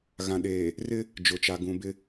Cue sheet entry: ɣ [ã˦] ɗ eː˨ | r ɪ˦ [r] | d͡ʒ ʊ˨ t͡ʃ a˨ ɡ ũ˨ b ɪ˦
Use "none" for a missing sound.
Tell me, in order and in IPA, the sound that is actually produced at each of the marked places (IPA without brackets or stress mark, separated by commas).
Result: ã˨, none